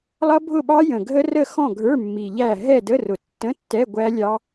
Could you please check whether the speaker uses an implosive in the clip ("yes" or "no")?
yes